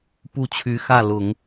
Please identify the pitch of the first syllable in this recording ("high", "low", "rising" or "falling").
falling